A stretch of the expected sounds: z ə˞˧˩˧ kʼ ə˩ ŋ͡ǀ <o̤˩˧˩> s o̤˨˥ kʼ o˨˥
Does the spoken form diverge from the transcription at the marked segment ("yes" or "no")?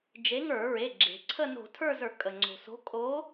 yes